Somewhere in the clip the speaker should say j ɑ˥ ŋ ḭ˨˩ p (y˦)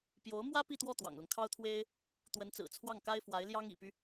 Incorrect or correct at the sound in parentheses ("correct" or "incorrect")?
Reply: correct